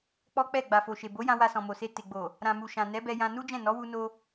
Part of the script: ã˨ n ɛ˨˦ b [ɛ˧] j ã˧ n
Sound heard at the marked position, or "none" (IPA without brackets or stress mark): ɛ˧